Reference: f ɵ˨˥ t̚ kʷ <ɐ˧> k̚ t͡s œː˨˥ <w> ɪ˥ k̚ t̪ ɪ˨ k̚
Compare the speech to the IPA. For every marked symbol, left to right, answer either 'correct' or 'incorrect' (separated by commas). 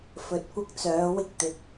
incorrect, correct